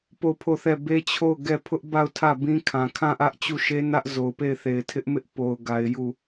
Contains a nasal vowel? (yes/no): yes